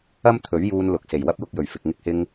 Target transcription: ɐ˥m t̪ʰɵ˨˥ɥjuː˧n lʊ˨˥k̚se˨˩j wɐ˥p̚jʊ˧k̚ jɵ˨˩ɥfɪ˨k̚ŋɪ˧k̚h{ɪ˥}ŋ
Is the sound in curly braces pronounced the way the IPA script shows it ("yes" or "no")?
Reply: no